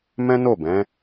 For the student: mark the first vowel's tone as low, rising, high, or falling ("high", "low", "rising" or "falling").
high